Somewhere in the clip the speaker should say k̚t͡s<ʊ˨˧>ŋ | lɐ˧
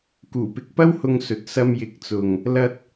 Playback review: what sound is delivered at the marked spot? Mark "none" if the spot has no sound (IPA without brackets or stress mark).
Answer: ʊ˨